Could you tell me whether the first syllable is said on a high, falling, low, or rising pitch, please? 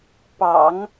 low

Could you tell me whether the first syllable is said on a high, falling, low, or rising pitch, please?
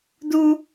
high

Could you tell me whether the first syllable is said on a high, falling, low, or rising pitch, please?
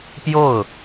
falling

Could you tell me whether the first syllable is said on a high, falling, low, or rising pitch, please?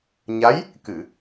rising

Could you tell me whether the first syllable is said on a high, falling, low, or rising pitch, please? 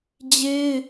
high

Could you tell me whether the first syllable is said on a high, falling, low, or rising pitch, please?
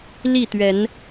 falling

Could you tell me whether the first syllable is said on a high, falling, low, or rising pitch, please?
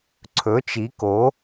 rising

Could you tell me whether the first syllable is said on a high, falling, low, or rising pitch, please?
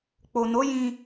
low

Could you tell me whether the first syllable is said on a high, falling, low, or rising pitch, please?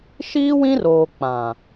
high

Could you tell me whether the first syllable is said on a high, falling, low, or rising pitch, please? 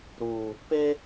low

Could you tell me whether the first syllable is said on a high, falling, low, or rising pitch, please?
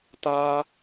high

